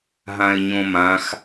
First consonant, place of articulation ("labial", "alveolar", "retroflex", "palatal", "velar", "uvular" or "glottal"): glottal